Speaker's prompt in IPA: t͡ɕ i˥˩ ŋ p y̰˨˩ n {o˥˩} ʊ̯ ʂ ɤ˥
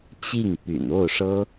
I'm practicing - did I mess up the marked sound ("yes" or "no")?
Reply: no